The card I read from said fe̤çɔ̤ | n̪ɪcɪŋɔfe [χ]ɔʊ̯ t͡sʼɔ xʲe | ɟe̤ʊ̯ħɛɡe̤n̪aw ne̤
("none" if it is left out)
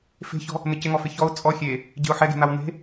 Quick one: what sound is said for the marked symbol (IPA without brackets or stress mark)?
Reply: ç